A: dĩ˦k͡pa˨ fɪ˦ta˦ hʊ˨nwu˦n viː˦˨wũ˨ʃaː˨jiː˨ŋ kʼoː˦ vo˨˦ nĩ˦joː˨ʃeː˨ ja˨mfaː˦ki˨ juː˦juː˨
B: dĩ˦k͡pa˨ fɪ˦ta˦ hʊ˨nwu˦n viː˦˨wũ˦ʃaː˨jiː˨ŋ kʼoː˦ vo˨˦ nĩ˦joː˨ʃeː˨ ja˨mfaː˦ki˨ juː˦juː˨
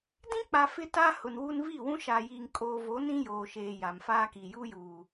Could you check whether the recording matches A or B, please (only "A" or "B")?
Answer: B